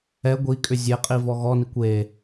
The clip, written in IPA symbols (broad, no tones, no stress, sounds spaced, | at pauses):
ɛ ɡʷ i kʼ ʏ zʲ e qʼ i v ɔ ɣ ɔ n i kʷ e